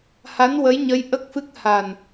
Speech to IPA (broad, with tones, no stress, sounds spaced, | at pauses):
h a˧˥ n w ə˧˥ j ɲ ə˧˥ j ʔ ə˦˥ k̚ f ɨ˦˥ k̚ h a˨˩ n